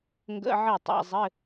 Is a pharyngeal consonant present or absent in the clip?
present